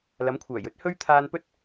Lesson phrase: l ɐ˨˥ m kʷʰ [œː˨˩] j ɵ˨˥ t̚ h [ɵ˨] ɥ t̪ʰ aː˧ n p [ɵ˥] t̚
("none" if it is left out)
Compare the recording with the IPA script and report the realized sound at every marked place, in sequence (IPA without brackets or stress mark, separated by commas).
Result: œː˨˩, ɵ˥, ɵ˥